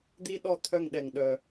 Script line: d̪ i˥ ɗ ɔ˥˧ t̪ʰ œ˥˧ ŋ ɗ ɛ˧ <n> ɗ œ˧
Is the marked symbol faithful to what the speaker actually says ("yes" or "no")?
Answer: no